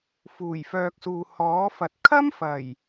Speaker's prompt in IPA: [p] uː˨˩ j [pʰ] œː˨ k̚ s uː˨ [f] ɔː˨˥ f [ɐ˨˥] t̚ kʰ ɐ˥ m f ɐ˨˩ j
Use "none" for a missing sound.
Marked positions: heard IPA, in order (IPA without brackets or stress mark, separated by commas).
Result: f, f, h, ɐ˨